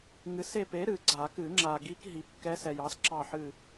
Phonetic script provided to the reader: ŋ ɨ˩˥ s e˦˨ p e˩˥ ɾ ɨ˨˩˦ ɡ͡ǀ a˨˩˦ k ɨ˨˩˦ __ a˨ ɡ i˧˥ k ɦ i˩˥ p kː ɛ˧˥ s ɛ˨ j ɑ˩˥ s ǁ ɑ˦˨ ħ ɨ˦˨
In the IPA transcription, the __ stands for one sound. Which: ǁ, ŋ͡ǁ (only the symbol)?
ŋ͡ǁ